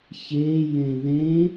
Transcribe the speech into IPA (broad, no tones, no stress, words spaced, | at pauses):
çe jẽðẽ